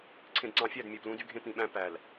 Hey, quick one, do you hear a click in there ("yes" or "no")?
yes